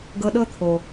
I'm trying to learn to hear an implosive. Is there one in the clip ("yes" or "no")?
yes